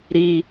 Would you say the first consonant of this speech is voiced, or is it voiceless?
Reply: voiced